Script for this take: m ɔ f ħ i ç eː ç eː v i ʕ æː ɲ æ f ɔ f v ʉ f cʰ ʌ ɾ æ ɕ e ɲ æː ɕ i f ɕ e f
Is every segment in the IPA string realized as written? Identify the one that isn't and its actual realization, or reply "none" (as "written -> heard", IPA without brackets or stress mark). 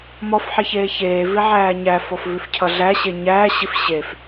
ɾ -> ɮ